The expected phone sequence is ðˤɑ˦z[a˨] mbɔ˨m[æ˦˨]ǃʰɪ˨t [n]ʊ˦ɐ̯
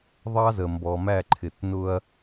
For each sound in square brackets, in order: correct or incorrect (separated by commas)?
incorrect, correct, correct